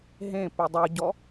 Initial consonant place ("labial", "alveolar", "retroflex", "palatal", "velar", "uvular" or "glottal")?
glottal